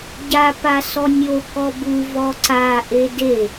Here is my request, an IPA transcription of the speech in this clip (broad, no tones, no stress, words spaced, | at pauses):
ɟapa sɔnʲo kɔbu vɔǀaʔe de